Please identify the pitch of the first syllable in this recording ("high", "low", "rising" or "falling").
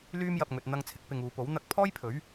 high